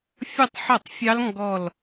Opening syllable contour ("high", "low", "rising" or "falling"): falling